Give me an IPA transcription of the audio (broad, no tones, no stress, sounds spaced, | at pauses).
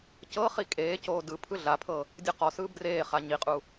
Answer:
c ɤ χ i kʼ eː c oː d ɯ pʰ ɯ ɮ a pʰ ɤ | dʲ ɛ q ɔ s ɯː b r eː χ a ɲ i qʼ u